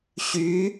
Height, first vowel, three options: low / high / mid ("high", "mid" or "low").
high